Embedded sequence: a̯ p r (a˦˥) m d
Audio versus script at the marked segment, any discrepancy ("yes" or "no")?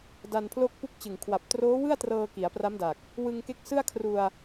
no